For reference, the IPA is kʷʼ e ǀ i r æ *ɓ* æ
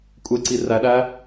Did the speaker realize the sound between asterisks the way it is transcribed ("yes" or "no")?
no